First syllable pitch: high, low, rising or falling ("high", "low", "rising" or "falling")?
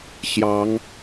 rising